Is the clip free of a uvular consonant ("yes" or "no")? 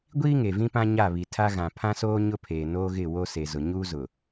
yes